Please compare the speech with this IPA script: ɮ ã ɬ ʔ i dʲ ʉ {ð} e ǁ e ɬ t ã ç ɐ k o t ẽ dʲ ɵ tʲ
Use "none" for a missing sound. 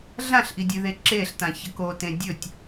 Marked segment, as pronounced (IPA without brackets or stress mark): ð